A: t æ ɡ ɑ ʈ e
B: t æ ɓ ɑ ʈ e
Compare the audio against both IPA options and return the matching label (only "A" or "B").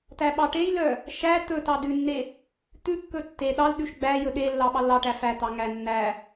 B